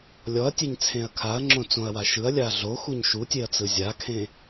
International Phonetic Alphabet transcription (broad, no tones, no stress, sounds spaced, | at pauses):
lʲ ɔ ɐ̯ tʲ e ɲ t͡sʰ ẽ ɐ̯ kʰ a ɐ̯ ŋ͡ǁ õ t͡s õ ɐ̯ w a ʃ ɯ ɐ̯ lʲ a ɮ o x u ɲ ʃ u tʲ e ɐ̯ t͡s ɯ zʲ a kʰ ẽ